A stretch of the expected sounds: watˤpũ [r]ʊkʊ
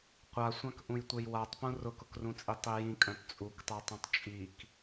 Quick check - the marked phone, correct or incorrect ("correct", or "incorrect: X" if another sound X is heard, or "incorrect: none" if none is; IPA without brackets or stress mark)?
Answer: correct